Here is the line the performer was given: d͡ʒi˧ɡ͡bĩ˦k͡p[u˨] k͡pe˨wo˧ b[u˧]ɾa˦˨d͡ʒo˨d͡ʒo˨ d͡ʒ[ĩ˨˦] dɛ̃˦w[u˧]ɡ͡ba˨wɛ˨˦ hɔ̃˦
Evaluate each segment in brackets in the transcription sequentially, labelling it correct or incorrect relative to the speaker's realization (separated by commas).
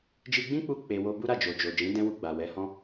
incorrect, incorrect, correct, correct